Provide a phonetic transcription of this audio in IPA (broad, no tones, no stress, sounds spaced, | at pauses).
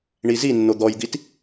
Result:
ɳ i z i nː o d̪ ɔ j d̪ i t